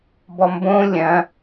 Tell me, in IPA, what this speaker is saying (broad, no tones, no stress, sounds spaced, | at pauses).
b ɔ m b õ lʲ ɐ̃